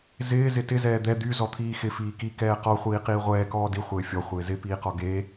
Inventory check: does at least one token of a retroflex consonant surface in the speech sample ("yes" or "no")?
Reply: no